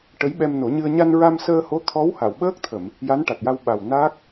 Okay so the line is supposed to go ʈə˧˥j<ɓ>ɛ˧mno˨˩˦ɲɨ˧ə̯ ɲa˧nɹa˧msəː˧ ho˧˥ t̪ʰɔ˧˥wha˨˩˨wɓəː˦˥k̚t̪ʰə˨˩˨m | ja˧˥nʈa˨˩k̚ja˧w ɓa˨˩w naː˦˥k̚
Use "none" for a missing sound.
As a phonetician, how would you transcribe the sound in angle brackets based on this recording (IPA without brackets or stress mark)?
ɓ